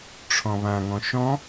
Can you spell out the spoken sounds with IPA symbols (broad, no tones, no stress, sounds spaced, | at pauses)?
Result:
ʈ͡ʂʰ ɔ̃ β ã ŋ ɔ̃ ʃ ɔ̃